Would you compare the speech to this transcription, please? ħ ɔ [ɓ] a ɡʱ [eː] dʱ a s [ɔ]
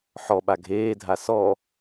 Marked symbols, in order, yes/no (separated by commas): yes, yes, yes